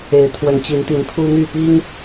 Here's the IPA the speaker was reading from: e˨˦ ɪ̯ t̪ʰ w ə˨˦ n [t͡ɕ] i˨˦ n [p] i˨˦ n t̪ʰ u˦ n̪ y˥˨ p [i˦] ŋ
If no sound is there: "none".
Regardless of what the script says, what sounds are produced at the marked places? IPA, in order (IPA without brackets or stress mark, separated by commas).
t͡ɕ, t̪, i˦